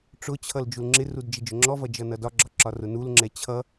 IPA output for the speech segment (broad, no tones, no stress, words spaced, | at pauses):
ʈ͡ʂʊt͡ɕʰʌl d͡ʒulŋ͡ǁɪrud d͡ʒɪd͡ʒʊŋ͡ǁɔvʌ d͡ʒʌnʌdɒɡ͡ǁɒ ǁɒrʊnulŋ͡ǁɛ t͡ɕʰʌ